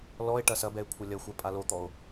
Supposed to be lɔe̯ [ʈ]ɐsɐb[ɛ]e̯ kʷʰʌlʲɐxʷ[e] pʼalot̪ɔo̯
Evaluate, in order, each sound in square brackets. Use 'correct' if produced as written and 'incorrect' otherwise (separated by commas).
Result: correct, correct, incorrect